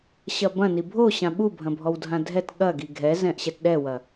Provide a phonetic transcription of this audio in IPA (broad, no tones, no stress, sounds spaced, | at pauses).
ɕ ɐ b ɐ̃ n i bʱ o ɕ ã ɓ u bʱ ɐ̃ bʱ ɔ w dʱ ã dʱ ɛ t ɠ ɐ ɡ i ɡʱ ɛ z ɛ̃ ʔ ɕ ɛ t ɗ ɛ w ɐ